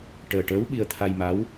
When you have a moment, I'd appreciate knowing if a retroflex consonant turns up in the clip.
yes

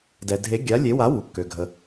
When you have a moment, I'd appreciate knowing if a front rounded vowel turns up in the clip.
yes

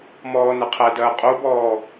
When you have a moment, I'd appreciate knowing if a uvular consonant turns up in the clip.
yes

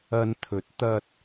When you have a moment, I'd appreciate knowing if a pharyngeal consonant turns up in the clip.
no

